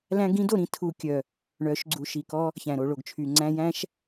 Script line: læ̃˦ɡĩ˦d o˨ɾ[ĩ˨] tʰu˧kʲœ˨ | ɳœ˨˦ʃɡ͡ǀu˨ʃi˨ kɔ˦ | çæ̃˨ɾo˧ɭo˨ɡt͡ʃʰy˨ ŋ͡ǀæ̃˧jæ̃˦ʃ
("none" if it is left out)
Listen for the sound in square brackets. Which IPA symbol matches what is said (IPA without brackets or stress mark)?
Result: ĩ˧